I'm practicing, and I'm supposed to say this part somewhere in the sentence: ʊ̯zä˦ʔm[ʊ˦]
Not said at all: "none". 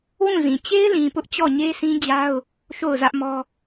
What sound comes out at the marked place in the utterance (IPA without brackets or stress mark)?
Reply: ɔ˦